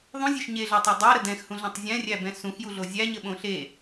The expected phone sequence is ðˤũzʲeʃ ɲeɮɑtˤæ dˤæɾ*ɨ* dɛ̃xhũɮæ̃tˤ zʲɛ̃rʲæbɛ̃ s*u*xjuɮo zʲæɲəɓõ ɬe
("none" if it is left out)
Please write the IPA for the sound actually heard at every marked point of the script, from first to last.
ə, ũ

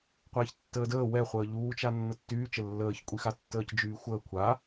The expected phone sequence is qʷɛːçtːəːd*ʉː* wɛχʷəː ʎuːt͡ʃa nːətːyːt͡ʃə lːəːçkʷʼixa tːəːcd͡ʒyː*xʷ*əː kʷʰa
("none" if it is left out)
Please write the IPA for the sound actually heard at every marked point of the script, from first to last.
əː, xʷ

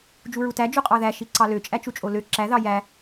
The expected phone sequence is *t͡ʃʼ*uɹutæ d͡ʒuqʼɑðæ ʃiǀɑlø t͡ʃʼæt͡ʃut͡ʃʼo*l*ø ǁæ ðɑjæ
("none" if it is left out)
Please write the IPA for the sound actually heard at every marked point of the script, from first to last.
d͡ʒ, l

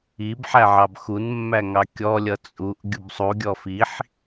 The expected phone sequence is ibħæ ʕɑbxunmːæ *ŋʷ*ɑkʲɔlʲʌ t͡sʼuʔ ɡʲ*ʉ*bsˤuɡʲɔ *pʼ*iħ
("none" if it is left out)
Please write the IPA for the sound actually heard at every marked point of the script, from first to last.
ŋ, u, f

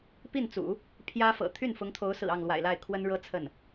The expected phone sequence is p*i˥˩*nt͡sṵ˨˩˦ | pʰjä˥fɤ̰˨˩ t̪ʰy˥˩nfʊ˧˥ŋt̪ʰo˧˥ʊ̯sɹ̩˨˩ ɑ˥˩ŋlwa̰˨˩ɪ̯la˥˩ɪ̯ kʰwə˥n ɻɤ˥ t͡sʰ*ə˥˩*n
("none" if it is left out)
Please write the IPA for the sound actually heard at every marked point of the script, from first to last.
i˥˩, ə˥˩

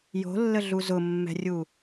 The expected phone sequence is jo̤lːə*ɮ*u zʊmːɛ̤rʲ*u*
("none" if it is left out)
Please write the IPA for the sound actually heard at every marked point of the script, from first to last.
ɮ, u

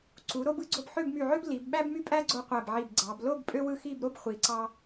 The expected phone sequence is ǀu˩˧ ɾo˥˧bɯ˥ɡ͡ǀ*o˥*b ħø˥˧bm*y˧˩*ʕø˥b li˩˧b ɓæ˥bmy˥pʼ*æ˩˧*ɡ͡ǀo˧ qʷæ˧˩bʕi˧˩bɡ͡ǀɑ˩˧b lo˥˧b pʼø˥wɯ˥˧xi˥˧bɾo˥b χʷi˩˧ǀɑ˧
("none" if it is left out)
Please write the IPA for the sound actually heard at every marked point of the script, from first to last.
o˧, y˧˩, æ˥

